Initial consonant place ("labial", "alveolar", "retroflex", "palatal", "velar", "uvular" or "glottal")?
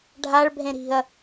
retroflex